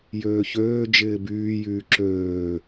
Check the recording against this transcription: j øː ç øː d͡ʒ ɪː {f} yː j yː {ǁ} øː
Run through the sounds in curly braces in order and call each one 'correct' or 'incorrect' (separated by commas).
incorrect, correct